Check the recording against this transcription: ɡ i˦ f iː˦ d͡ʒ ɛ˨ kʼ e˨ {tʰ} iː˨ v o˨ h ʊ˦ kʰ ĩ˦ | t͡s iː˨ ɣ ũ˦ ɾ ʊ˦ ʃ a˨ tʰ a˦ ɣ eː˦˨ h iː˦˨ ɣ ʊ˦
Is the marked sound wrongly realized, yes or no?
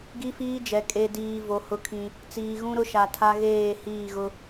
yes